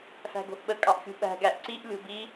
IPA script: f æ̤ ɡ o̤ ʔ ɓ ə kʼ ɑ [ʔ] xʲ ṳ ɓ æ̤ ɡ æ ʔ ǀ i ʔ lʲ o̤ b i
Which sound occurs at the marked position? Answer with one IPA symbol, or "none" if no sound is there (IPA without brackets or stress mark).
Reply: ʔ